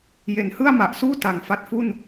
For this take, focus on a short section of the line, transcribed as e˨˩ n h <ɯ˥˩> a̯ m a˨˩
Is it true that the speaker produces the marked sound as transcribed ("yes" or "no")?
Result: yes